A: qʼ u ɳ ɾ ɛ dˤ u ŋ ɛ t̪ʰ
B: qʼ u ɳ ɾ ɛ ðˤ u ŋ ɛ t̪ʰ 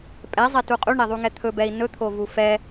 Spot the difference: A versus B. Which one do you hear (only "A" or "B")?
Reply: B